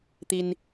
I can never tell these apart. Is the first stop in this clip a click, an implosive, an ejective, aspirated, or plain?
plain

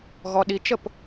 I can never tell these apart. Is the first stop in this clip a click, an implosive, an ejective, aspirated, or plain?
implosive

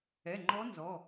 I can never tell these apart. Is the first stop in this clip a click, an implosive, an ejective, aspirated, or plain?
click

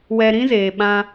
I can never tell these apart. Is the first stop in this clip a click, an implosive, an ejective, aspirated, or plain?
implosive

